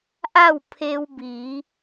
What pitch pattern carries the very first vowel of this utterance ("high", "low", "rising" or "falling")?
falling